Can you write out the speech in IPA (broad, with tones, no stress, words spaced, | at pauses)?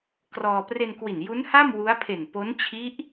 krɔː˧ pre˧nkwi˨˩n ju˦˥nha˥˩m wu˦˥a̯ pʰe˨˩npo˦˥n t͡ɕʰi˦˥ʔ